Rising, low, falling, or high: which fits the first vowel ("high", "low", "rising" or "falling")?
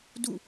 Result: falling